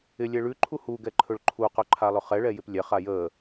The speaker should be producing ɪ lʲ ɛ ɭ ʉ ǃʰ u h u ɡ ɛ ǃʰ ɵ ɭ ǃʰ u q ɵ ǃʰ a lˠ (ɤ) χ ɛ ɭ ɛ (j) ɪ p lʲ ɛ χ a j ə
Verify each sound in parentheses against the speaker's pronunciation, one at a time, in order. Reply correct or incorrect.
incorrect, correct

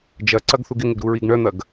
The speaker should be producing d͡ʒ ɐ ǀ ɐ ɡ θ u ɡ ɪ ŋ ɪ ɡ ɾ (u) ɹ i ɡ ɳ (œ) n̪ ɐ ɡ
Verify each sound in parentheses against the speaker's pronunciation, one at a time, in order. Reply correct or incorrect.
correct, correct

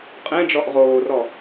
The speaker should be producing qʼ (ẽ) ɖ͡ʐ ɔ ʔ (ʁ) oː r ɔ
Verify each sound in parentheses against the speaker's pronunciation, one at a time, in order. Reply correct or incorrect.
correct, correct

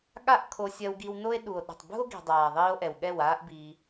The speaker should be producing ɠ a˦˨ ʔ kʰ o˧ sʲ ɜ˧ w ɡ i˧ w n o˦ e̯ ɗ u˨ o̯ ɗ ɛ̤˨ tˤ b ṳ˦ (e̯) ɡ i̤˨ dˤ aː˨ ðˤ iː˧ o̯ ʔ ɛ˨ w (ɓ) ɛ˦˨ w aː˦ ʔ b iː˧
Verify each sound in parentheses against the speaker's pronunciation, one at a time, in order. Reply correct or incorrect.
incorrect, incorrect

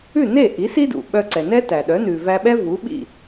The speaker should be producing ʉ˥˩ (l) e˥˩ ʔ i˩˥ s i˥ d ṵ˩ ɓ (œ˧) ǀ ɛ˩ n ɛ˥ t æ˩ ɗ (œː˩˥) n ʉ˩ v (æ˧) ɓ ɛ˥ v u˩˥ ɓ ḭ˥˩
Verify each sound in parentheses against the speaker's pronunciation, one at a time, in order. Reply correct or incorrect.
incorrect, correct, incorrect, correct

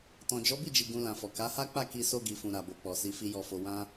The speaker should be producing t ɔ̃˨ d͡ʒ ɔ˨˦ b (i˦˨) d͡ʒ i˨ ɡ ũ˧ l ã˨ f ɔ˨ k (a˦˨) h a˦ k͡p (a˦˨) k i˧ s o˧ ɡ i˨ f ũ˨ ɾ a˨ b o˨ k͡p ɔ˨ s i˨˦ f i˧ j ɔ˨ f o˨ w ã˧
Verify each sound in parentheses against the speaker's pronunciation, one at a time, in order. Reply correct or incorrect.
correct, incorrect, correct

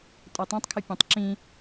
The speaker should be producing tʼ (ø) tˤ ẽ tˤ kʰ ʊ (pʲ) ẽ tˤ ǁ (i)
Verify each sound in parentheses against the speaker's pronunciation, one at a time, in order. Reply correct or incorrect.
correct, correct, incorrect

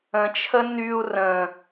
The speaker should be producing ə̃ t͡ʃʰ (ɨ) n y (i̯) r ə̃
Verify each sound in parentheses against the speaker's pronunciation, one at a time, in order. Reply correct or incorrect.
incorrect, incorrect

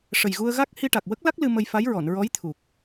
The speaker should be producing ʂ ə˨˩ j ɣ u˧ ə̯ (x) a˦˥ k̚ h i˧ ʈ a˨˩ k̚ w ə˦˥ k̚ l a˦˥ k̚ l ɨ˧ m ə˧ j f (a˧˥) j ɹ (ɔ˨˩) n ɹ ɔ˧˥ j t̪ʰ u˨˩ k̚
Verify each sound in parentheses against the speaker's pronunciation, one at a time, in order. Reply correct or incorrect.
incorrect, correct, incorrect

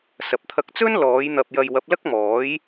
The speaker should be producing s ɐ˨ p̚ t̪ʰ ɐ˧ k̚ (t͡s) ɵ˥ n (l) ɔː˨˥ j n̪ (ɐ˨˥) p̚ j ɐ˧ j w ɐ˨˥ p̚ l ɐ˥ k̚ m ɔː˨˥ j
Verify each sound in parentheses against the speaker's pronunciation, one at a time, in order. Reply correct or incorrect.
correct, correct, incorrect

